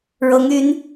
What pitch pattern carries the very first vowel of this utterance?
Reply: rising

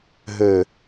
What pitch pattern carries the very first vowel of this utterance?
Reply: low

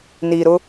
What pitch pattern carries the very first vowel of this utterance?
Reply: low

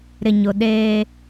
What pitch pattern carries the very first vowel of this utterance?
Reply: low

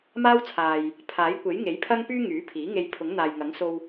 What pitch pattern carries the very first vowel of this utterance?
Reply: high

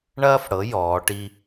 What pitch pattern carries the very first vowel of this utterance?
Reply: high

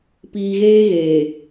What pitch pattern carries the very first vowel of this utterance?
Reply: low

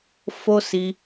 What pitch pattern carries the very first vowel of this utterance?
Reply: high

